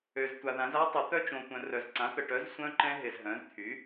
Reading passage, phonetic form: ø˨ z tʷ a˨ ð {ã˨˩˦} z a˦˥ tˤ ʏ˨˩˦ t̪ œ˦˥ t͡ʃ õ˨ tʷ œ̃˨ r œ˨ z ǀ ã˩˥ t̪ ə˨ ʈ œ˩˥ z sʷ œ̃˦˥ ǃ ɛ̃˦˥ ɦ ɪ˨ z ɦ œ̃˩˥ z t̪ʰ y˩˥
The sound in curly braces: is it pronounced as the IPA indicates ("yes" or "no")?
yes